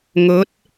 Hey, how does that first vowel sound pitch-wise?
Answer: rising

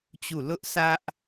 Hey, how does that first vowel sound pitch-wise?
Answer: falling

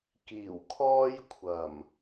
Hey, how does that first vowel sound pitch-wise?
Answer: low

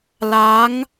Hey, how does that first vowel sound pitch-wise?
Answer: rising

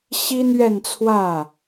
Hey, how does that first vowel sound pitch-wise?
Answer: high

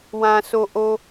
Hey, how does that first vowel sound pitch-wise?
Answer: low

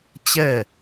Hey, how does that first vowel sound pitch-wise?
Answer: falling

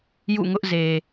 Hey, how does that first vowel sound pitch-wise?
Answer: falling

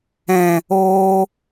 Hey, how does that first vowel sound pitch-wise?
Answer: low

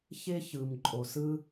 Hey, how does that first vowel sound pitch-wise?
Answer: high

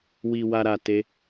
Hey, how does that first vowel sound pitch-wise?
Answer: low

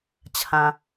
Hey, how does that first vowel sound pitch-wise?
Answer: low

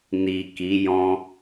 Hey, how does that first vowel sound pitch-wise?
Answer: low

